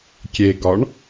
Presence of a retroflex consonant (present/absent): present